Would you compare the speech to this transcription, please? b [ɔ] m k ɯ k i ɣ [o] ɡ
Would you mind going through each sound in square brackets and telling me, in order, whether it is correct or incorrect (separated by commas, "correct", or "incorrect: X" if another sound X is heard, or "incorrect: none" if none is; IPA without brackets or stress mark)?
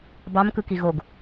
incorrect: ɑ, correct